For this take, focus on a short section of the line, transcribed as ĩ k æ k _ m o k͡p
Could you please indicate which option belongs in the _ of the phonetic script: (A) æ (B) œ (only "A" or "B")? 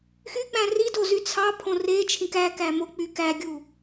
A